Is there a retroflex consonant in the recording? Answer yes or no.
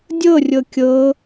no